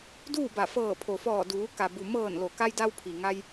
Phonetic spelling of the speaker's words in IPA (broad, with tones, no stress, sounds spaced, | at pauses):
d uː˥˨ b a˧˩ f ɤː˧˩ pʰ o˩ f ɔː˧˩ d uː˩˧ k a˩ b u˩ m ɤː˧˩ n l o˩ k a˧ j d a˧ w pʰ i˩ ŋ a˧ j